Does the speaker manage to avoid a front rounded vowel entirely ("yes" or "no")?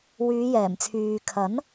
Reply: no